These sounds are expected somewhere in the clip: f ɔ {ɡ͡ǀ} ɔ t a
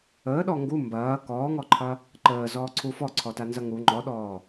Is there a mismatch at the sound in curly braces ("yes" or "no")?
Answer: yes